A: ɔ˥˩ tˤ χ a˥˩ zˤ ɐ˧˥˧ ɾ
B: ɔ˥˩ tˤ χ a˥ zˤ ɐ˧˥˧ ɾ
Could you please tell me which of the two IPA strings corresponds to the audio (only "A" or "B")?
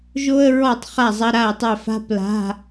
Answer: A